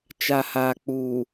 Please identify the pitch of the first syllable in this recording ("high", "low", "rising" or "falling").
low